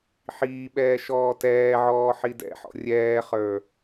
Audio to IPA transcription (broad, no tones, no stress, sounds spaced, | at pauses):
ħ iː ɓ ɛː ʃ ɔː t ɛː ʕ ɔː ħ i d ɛ̰ ħ ɔ̰ rʲ ɛː χ ə˞